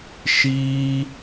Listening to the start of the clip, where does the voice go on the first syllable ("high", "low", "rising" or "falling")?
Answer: high